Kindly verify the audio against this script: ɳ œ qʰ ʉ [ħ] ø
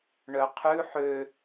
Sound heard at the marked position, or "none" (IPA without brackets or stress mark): ħ